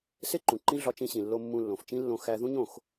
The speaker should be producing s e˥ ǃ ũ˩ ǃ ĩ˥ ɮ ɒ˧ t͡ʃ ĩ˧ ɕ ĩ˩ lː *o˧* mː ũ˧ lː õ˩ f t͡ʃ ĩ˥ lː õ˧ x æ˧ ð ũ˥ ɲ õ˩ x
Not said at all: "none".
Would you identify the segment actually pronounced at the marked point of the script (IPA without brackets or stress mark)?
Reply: o˧